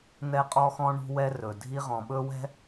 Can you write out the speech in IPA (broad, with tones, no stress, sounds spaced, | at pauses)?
n̪ ɛ˦ qʼ ɔ˦ x ɔ̃˦ ɳ ṳ˦ w ɛ˦ r ɵ˨ dʱ i˦ ʁ ɔ̃˨ ɓ ɵ˦ w ɛ̤˦